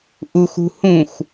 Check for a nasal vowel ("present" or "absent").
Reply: present